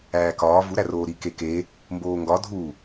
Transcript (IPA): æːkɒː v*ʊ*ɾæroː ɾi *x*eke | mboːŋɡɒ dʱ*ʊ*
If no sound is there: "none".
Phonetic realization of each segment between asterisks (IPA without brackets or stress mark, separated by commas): u, k, u